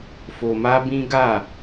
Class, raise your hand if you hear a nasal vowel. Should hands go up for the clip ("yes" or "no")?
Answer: yes